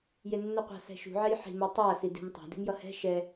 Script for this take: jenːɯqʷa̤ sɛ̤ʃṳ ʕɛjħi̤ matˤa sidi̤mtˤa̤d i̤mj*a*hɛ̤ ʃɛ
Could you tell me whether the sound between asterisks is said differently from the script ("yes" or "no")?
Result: yes